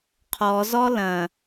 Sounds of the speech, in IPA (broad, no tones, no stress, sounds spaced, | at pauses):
qʰ ɔ z ɔ l ɐ̃